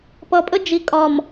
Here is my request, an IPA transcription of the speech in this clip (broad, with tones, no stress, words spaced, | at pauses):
pʌ˨pʼə˦ d͡ʒi˨kʼɒ˨m